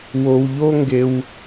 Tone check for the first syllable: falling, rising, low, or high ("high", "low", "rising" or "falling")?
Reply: low